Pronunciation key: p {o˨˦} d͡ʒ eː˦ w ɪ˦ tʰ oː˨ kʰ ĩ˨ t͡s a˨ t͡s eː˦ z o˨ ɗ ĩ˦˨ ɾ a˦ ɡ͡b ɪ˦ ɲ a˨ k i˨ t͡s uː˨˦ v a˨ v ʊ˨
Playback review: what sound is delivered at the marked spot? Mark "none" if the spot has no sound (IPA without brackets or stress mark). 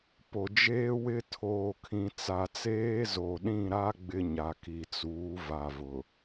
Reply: o˨